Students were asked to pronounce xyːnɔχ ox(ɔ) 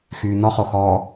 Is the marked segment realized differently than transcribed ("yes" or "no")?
yes